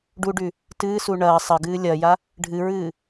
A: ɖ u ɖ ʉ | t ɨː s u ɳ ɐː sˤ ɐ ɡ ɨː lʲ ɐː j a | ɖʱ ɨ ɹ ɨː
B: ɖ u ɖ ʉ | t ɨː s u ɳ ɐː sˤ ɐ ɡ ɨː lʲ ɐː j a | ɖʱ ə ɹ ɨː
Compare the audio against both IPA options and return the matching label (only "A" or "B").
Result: A